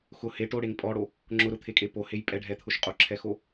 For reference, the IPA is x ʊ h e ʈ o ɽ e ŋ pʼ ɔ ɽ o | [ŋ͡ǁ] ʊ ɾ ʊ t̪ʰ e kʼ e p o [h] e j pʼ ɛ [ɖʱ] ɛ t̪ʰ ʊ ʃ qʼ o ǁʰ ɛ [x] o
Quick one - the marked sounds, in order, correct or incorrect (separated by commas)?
correct, correct, correct, correct